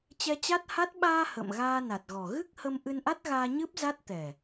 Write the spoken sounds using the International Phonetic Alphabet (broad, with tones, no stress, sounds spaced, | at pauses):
t͡ɕ ɛ˧ t͡ɕ a˦˥ t̚ h a˦˥ t̚ ɓ aː˧ h ə̰ː˧˨ m ɣ aː˧ n a˨˩ t̚ ɣ ɔ˨˩ ɣ ɨ˦˥ k̚ h ə˧ m ʔ ɨ˧ n ʔ a˦˥ t̚ ɣ aː˧ ɲ ɨ˦˥ p̚ z a˦˥ t̚ t̪ ɛ˨˩